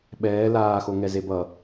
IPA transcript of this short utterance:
ɓ ɛː l aː x o ŋ ɛ z e b ʌ

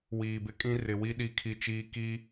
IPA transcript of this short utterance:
w iː˨ b ɪ˦ kʼ ĩ˦ r ɪ˨ w i˦ ɗ i˦˨ kʰ i˦ t͡ʃ iː˦ k i˦

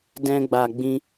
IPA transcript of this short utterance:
d ɛ̃˧ ɡ͡b a˨ ɡ͡b ĩ˧

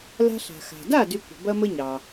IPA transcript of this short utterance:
l a̤˧ ɬ a̤˩ x a̤˩ d a˥˩ d y˧ kʷ ə̤˩ b ɐ˥ m ə˥ ɲ ɑ˩

